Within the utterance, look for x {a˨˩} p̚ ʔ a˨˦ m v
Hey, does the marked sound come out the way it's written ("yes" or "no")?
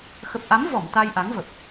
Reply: no